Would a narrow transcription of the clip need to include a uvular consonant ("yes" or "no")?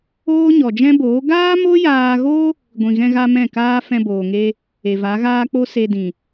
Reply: no